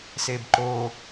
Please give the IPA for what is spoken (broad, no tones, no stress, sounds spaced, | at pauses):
s e b ǃ o